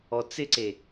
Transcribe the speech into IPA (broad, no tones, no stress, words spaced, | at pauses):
ɔt͡sɪǀe